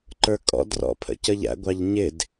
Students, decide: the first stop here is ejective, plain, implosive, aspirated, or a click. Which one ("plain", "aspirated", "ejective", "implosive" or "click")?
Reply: click